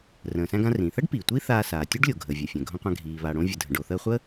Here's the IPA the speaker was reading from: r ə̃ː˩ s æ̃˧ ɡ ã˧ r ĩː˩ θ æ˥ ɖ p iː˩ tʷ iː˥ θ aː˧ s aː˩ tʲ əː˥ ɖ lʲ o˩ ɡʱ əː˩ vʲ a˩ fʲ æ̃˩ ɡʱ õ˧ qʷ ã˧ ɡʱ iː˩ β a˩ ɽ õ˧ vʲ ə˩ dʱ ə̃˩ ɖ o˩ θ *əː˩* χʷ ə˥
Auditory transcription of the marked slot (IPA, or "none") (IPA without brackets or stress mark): əː˧